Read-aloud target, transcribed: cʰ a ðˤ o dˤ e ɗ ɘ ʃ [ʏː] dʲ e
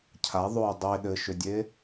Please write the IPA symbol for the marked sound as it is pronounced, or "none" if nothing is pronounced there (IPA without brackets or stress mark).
ʏ